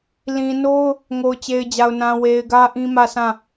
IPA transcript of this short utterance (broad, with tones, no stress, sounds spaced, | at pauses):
l ĩ˨ n o˦ ʊ̯ | ŋ o˨ ʊ̯ t͡ɕ e˨ ɪ̯ d͡ʑ a˨ ʊ̯ n ã˨ w e˨ ɪ̯ ɡ ä˦ ʔ ĩ˦ m ä˦˨ s ã˦˨